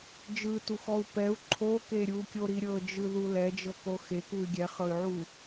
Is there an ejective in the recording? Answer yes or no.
no